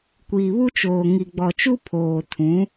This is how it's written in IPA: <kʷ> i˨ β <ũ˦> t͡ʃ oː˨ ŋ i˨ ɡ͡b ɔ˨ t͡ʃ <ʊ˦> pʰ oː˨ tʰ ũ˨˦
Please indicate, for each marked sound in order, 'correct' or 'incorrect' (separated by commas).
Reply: correct, incorrect, incorrect